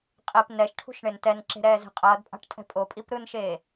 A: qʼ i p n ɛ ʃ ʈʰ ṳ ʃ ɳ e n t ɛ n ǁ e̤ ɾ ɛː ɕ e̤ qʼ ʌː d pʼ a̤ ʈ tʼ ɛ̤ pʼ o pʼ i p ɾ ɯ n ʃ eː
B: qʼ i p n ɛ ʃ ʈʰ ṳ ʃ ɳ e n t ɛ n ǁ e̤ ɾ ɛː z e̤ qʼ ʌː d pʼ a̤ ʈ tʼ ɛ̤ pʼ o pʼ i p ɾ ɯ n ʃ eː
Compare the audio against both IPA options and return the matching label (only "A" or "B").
B